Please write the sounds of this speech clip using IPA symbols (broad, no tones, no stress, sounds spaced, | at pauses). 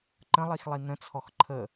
ǃ ə̃ lˠ i x lˠ i n ə̃ t͡sʰ ɔ x ǃʰ ə